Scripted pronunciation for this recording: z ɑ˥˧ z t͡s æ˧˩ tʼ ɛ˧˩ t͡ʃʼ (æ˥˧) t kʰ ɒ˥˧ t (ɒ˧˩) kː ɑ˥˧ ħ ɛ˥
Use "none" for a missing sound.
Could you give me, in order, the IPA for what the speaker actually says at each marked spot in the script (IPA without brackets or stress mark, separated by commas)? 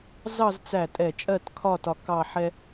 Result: ɜ˥˧, ɒ˧